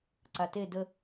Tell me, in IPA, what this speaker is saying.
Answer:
ǀate də

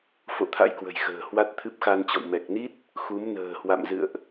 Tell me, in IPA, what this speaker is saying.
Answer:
fo̰˧˨t̪ʰa̰˧˥jkwə̤˨˩jxə̤ː˨˩ hwa˦˥t̚t̪ʰɨ˦˥p̚xa˧nt͡ɕɔ̰˧˨w mɛ˨˩k̚ni˦˥t̚ | xu˨˦mnə̤ː˨˩hwa̰˧˨mzɨ̰˧˨ə̯ʔ

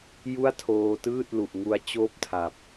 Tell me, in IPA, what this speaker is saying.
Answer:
ju˥˩a̯tʰoː˧tɯː˥˩t̚ lu˨˩ʔŋu˦˥a̯ t͡ɕoː˥˩p̚tʰa˨˩p̚

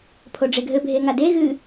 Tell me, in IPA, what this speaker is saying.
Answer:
pʰoɖ͡ʐeɡʱɘ bʱeŋade ɣɨ

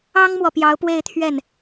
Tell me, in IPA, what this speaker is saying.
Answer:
ɑ˥ŋmwɔ˨ pjɑ˧˥ʊ̯pwe˥˧ɪ̯ t̪ʰɥɛ˥˩n

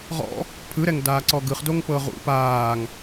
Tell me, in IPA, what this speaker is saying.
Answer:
ʁɔ̰ | pʰɯɾɛŋdaː ǀɔɡɯχ doŋpɤʁṵ paːŋ

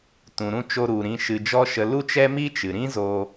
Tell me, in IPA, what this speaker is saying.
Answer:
tũ˨ɾũ˧ t͡ʃo˧ɾu˨ ɾĩ˧ ʃɨ˧d͡ʒɔ˦ʃə˧ lu˦t͡ʃɛ˦ mi˦t͡ʃɨ˨ ɾĩ˦zo˧

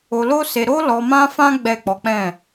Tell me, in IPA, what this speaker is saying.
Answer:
o˧lo˦se˧ ɾo˦ lɔ˧mã˦fã˦ ɡ͡bɛ˦˨k͡pɔ˨˦k͡pɛ̃˦˨

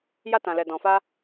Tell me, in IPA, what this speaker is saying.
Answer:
ja˧tã˨lɛ˨ dɔ̃˨fa˧

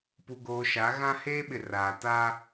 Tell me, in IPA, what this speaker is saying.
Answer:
pu˨ɡoː˨ʃa˨˦ ɣã˦heː˦ɓɪ˨ raː˨ ta˦

